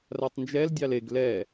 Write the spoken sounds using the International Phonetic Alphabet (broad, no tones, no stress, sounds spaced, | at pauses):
r a tˤ n d͡ʒ ɛ l dʲ ɑ l e ɡ l ɛ